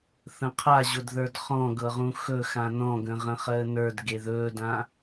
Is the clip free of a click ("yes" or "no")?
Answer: yes